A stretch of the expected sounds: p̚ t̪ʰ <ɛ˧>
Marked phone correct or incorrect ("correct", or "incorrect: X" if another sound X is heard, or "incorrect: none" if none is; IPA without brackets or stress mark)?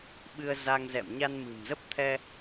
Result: correct